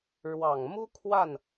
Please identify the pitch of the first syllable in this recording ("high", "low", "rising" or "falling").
low